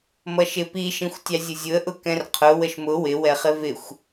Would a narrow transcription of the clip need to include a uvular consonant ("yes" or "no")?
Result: yes